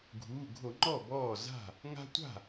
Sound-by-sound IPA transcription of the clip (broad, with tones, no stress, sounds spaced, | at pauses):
ɡʱ uː˩˧˩ ɡʱ o˧˩˧ ŋ͡ǃ ɔ˥˩ b ɔː˥˩ z a̤˥˩ | ŋ a̤˦ tʷ a̤˥˩